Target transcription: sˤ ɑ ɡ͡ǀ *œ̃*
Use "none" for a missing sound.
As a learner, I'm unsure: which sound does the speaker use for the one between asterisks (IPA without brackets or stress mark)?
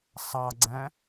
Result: æ̃